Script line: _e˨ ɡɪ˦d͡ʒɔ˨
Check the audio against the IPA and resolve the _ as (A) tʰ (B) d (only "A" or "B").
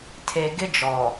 A